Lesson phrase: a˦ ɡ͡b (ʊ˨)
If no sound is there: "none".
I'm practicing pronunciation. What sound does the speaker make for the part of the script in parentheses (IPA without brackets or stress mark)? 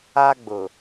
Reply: ʊ˨